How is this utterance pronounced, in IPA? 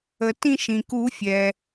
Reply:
ə˩ tĩ˦˨ʃ ĩ˩ku˨˩˦fʲɛ˩

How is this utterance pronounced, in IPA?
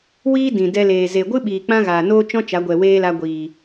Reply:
wiː˦ dĩ˨ dɛ˧leː˨ ze˨ɡʷɨ˦ɓiː˨ k͡pã˦ ɣaː˨noː˦t͡ʃɔ̃˦ t͡ʃa˨˦ɡʷɛ˨ weː˦la˧ɡʷiː˨

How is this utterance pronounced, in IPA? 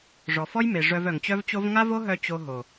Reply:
ʐɔ˨fɔ˦jme˨ ʐœ˧vœ˨ŋt͡ɕœ˦vt͡ɕo˦v ŋa˦vo˦ɦœ˧ t͡ɕo˧ɦo˨

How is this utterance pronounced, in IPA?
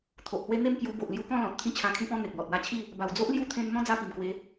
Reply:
t̪ʰo˨ʔhwe˦ n̪e˥˧mkju˧ bo˨ʔlju˧kɔ̃˥˧ lɔ̃˨t̚ t̪ʰĩ˦t͡ɕʰã˧kʰĩ˦pɔ̃˦ n̪e˨k̚lɔ˨t̚wa˦t͡ɕʰi˥˧ | ba˨˩wd͡zo˦ʔ lju˦t̪ʰẽ˧n n̪ɔ̃˦ d͡za˥˧pi˨˩mkwe˨˦

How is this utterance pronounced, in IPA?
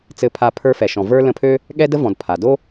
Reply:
t͡sɘ˦pʰa˦ pʰə˞˦fɛ˨ʃɔ̃˨ və˞˦ lə̃˦pʰø˥ | ɠɛ˥də˥vɔ̃˨d pʰa˩do˥

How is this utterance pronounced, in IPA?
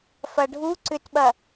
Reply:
fɐɖʱu ǀʏtɓɐ

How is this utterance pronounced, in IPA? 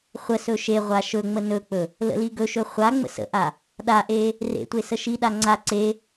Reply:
χʷəsɵ ʃeʁʷa ʃɵŋ͡mə nɵk͡pɵ | lə̰liɡɵʃɵ χʷa ŋ͡mə̰sə̰ʔa | ɗaʔe | rḛtʷe səʃiɗa ŋ͡ǀa ǀe

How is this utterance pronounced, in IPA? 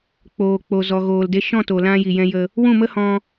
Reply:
k͡poː˨k͡po˨ zɔ˨ɣoː˨lde˧ ʃɔ̃˦˨to˨lã˧ ji˨jɛ̃˧jə˧ | wũ˦˨mə˦hɔ̃˧

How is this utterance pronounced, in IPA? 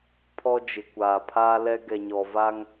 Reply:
pʰɔ˦ d͡ʒɪ˨kʷaː˨pʰaː˦lɛ˦ ɡɛ˨ɲɔ˨va˦ŋ

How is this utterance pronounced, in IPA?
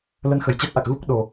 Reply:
lə˧nxə˨˩jt͡ɕɛ˦˥t̚ʔa˨˩k̚ ɣu˦˥k̚ ɗo˨˩

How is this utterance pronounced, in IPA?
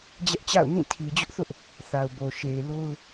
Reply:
d͡ʑɛ˦ʔt͡ɕa̰˦˨ʊ̯nĩ˦˨ tʰi˨d͡ʑʊ˦ʔθʊ˦ʔ | θa˨ʊ̯bo˨ʃe˨ɪ̯ lo˦ʊ̯

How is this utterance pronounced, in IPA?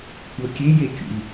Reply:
kʷɤkʲejekʲṵlʲ

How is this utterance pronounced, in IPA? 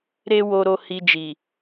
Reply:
ɾe˦ wo˧ɾo˧ hi˧d͡ʒi˨

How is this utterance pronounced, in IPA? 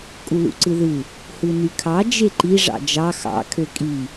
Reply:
kʼulṵǀɯðɯ | hɯnykʰɑ d͡ʒeǃi ʐɑ̰d͡ʒɑ xɑ̰ kʰøkʼi

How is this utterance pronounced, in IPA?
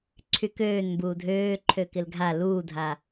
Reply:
ǀʰykøːnmbuː dʱøːǃʰø kɪlɡʱa luːdʱa

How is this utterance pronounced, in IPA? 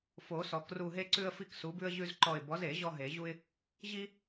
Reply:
fo˨˩˦sɔ˨˩˦kru˦˨ ɦe˥ǀʉ˥ə̯fi˥k su˨˥bʉ˥ə̯ ʑʉ˥zǃɔ˦˨ɪ̯ bɔ˨˥ze˨˩˦ ʑɔ˥ɦe˨˩˦ʑu˥ɪ̯ | ʑi˥

